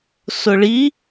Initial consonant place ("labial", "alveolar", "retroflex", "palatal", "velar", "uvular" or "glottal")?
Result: alveolar